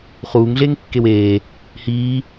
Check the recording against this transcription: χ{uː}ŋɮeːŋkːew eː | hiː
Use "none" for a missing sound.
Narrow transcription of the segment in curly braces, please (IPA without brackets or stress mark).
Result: uː